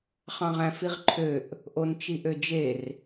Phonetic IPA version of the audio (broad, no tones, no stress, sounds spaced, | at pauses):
χ ɑ̃ ʁ æ̃ f i ʁ ǃʰ ø ʔ | ʔ o n t͡ʃ i ʔ ø d͡ʒ e r